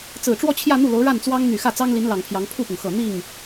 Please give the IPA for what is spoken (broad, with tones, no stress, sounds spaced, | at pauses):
t͡s ɹ̩˨˩ ʈ͡ʂ w ɔ˥˧ t͡ɕʰ j ä˥˧ n̪ u˥˩ l o˧˥ ʊ̯ ɻ a˥˩ n t͡s w ɑ˥ ŋ n̪ y˨˩ x ä˥˩ t͡s ɑ˥ ŋ l i˧˥ n l ɑ˨˩ ŋ pʰ j ɑ˧˥ ŋ pʰ u˥˩ p ʊ˩ ŋ x ɤ˨˩ n̪ i˥˩ ŋ